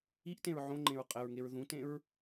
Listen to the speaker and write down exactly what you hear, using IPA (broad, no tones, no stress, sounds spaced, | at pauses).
i ʔ t ẽ ɹ ʕ õ ŋ͡ǃ ẽ ɹ qʼ ɘ ɹ ŋ e ɹ ð ũ t ẽ ɹ